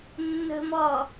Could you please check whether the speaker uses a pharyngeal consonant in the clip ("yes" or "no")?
no